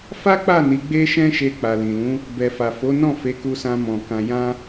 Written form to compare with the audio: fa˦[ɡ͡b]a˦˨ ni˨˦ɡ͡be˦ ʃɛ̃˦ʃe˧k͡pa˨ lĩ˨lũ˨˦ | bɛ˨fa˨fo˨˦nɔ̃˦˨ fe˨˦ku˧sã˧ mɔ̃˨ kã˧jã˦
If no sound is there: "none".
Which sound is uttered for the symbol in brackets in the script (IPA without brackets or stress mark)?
k͡p